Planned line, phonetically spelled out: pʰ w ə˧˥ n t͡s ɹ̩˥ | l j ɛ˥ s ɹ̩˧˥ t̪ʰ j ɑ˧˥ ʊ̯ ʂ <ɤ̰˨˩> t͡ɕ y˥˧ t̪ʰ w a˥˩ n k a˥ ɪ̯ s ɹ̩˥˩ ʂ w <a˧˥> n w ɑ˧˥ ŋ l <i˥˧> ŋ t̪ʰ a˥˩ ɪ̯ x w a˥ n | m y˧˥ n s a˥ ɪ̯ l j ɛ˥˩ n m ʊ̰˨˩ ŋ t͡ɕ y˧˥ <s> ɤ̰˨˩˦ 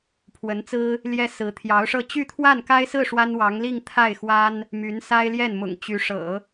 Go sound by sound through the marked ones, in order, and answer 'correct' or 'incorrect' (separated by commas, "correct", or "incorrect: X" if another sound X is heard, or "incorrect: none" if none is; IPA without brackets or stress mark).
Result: incorrect: ɤ˥˧, incorrect: a˥, correct, incorrect: ʂ